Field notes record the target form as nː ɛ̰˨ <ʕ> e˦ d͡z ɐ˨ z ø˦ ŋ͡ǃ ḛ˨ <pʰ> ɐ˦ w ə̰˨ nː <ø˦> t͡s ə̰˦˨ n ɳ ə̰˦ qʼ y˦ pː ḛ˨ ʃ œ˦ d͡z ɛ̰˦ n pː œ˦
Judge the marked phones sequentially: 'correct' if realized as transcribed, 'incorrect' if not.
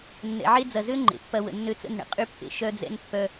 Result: correct, incorrect: pː, correct

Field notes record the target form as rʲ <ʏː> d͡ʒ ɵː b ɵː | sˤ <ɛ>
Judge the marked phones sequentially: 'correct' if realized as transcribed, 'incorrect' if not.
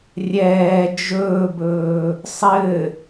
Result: incorrect: ɛː, incorrect: ɘ

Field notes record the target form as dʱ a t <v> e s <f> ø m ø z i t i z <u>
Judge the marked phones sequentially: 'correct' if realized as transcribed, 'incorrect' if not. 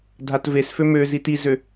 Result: correct, correct, incorrect: ø

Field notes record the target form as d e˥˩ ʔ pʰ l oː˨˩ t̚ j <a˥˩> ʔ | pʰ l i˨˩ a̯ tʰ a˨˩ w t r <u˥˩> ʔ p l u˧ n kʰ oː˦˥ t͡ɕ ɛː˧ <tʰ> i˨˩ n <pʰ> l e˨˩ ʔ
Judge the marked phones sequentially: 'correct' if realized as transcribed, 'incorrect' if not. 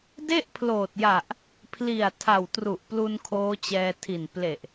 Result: incorrect: a˨˩, incorrect: u˨˩, correct, incorrect: p

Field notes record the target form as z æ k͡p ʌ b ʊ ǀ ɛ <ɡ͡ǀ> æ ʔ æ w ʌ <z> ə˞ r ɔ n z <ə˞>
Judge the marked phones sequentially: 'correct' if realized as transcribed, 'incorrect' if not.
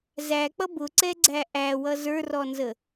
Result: correct, correct, incorrect: ə

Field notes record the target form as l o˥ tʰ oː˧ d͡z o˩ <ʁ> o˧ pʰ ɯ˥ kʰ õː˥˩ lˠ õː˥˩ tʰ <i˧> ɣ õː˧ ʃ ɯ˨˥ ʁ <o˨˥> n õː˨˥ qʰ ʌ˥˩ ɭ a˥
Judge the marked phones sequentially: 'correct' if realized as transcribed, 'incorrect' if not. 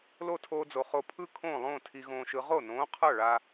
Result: incorrect: χ, correct, incorrect: o˥˩

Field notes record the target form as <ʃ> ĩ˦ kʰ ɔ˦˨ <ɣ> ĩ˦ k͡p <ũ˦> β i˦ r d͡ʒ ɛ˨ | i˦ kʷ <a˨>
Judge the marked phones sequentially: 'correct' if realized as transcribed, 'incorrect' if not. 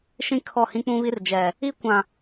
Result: correct, incorrect: h, correct, incorrect: ã˨

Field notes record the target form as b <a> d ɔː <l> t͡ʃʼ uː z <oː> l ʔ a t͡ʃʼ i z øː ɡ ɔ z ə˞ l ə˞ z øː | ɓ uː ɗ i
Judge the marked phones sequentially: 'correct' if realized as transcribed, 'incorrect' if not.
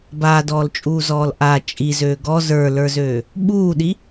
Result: incorrect: aː, correct, incorrect: ɔː

